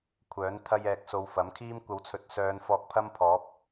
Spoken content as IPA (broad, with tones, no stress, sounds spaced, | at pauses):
kʷʰ œː˨˥ n t̪ʰ ɐ˧ j ɛː˨ k̚ s o˨˧ w f ɐ˨˥ m kʰ iː˥ m kʷ ɐ˨˧ w t͡sʰ ɵ˨ t̚ s œː˨˧ n f ɔː˧ k̚ pʰ ɐ˥ m pʰ ɔː˨˥ p̚